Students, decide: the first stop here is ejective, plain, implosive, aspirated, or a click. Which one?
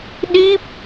implosive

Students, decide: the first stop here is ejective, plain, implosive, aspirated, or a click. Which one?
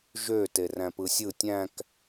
plain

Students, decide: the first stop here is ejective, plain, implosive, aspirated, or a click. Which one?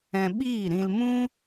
implosive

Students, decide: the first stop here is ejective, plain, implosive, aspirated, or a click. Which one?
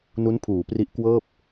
aspirated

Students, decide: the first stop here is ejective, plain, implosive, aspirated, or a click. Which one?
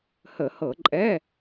click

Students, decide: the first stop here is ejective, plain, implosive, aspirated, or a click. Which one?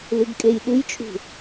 plain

